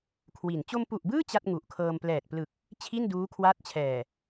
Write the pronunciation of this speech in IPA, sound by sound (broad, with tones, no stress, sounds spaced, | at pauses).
kʰ w i˨˩ n t͡ɕ o˧ m p u˨˩ ʔ b ɯː˥˩ t͡ɕ a˥˩ t̚ ŋ u˨˩ ʔ kʰ ɤː˧ m p l ɛː˨˩ t̚ p l ɯ˨˩ k̚ | t͡ɕʰ i˥˩ n d uː˦˥ kʰ w a˦˥ t̚ t͡ɕʰ ɛː˨˩